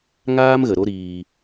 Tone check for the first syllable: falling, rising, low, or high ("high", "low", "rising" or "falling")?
high